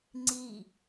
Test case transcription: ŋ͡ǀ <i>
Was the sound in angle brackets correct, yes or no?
yes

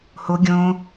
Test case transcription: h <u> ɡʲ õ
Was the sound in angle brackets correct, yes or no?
no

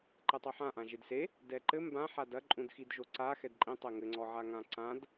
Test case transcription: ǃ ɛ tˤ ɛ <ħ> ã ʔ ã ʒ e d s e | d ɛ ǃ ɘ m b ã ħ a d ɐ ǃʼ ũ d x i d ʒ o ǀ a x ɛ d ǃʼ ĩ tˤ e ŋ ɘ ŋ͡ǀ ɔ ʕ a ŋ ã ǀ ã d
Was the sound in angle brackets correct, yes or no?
yes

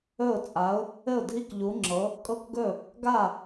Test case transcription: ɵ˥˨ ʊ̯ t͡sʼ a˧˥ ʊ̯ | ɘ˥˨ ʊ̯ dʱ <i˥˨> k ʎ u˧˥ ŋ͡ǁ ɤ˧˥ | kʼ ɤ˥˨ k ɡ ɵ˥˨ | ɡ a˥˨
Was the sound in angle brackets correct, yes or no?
yes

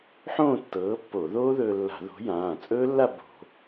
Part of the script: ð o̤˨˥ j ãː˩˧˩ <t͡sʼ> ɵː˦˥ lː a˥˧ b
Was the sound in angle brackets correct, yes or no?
yes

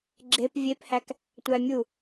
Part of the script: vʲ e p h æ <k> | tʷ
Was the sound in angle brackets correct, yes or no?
yes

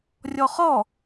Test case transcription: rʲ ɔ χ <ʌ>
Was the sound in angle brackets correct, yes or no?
no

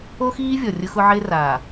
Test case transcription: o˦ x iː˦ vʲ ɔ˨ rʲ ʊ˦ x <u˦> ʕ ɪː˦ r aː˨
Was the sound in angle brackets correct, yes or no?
no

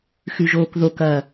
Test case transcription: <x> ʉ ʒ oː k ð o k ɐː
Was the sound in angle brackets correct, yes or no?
yes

